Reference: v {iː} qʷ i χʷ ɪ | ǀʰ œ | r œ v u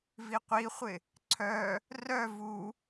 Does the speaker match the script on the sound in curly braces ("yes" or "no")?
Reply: no